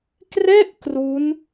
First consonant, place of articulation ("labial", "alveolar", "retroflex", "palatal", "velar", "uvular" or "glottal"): velar